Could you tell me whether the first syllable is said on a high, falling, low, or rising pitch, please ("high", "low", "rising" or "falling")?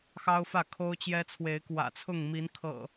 high